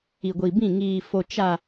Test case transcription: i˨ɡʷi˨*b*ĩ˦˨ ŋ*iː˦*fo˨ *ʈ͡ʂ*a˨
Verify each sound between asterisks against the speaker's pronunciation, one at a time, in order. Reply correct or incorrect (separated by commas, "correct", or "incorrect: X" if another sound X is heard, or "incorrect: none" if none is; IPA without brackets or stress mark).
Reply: correct, incorrect: iː˨, incorrect: t͡ʃ